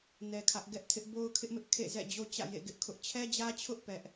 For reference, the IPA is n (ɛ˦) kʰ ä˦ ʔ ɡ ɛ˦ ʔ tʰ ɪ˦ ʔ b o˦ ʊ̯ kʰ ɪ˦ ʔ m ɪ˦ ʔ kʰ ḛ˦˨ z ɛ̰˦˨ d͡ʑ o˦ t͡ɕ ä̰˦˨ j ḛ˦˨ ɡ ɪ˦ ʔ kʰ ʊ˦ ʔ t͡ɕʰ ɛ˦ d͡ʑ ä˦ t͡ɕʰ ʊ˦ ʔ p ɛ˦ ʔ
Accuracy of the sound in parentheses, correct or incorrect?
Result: correct